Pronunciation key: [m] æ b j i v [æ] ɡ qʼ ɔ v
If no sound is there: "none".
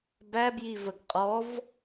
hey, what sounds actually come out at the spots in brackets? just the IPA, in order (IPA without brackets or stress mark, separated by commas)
b, ə